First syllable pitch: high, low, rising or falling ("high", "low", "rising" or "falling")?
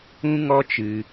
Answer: high